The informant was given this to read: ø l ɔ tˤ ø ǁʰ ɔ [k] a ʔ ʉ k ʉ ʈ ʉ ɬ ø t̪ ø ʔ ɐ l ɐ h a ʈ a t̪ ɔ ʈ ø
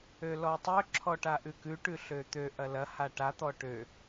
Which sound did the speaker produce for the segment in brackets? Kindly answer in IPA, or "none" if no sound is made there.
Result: ʈ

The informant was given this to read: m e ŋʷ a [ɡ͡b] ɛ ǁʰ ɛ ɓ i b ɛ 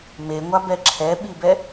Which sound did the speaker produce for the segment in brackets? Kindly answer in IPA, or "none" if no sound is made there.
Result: b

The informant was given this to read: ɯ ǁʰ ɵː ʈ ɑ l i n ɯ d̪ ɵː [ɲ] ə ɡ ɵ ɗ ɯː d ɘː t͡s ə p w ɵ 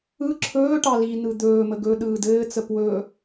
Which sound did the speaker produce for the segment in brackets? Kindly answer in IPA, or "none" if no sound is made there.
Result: m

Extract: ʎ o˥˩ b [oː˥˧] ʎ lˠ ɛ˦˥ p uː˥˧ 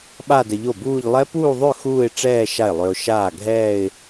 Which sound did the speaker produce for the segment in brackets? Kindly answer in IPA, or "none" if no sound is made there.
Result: uː˥˧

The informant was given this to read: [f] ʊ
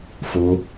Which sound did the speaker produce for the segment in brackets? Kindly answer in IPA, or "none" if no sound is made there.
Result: f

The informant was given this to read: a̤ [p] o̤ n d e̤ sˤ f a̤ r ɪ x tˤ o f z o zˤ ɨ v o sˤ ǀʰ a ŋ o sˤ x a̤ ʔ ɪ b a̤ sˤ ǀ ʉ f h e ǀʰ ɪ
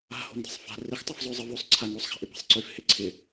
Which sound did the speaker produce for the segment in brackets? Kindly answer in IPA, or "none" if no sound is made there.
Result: h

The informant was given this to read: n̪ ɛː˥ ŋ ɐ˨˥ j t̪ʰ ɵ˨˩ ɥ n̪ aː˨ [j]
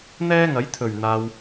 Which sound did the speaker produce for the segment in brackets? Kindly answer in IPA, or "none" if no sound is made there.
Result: w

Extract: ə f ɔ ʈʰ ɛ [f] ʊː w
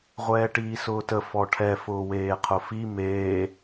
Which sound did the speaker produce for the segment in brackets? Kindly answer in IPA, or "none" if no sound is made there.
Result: f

